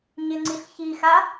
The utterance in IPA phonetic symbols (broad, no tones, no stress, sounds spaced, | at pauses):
ɲ ɪ ŋ͡ǀ i ɬ ç i x a